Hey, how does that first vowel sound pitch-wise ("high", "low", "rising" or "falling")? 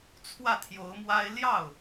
falling